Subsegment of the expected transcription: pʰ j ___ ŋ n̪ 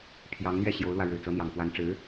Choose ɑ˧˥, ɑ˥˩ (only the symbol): ɑ˧˥